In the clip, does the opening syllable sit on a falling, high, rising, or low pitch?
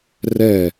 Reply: falling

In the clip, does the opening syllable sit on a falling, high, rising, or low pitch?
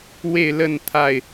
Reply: falling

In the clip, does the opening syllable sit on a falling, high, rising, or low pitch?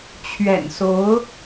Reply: low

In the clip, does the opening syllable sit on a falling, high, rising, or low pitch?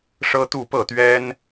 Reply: high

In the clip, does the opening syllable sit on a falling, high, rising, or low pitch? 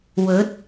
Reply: rising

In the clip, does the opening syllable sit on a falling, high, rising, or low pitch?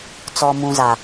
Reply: low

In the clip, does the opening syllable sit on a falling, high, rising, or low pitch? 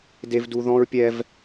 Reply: high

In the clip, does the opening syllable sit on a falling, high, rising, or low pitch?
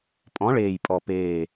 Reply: rising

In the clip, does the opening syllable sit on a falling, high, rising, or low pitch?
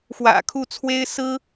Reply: low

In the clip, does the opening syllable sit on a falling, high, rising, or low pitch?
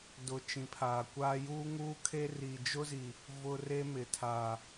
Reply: low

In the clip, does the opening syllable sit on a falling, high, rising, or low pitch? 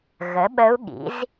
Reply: rising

